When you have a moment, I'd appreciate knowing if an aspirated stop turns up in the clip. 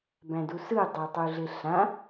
no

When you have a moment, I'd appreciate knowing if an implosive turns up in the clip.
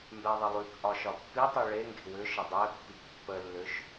no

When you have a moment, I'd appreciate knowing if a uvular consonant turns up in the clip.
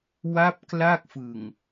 no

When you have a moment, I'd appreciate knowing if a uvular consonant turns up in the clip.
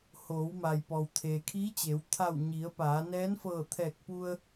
no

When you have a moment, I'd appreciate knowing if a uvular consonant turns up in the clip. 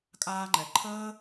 no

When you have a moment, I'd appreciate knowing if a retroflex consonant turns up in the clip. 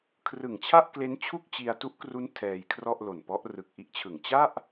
no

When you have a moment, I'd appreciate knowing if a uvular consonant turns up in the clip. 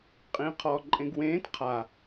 yes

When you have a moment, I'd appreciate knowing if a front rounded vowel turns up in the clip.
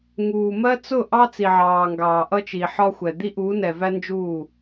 no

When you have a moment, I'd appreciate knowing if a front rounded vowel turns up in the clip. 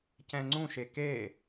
no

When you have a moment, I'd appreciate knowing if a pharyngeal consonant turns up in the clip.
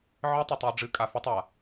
yes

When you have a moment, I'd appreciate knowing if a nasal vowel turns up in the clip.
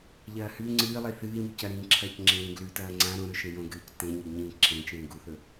yes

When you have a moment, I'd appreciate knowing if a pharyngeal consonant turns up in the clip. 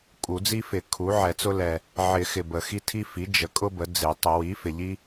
yes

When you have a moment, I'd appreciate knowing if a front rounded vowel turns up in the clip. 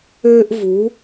yes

